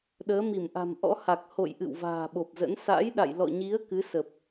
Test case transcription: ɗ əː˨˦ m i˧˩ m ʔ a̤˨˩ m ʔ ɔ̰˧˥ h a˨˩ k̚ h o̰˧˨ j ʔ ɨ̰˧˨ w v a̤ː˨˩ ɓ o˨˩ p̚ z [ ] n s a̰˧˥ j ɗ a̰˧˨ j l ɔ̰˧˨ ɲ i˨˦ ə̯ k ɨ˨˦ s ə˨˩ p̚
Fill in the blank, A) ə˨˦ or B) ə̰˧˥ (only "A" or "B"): B